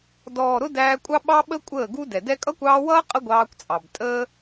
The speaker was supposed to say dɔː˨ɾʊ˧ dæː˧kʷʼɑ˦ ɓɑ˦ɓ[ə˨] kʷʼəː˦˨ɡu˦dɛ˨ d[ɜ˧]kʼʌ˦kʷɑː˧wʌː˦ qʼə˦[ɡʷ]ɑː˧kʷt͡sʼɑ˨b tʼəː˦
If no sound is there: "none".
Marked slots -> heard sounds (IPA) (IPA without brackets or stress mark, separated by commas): ə˦, ɛ˧, ɡʷ